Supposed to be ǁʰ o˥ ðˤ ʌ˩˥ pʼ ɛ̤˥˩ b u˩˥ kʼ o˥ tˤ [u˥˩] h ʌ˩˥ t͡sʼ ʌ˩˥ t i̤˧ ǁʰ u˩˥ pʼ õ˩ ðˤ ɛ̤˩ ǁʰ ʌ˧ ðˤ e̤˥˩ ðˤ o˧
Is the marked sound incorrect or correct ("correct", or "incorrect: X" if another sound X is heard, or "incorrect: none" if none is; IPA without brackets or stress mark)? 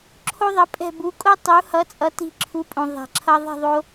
incorrect: u˩˥